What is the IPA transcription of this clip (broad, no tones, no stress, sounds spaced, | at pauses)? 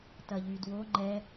t ɐ ʎ y d w o ŋ͡ǃ ɛ